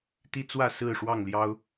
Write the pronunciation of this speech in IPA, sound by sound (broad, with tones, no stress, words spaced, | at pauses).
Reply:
t̪i˦t͡swä˥˨ sɹ̩˥˨ʂwɑ˥˨ŋ ljɑ˦ʊ̯